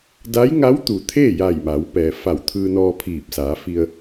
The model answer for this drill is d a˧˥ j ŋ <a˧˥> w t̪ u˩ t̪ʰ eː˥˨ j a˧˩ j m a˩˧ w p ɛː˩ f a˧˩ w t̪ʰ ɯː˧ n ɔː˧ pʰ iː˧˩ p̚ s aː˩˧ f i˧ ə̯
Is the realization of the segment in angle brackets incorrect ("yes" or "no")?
no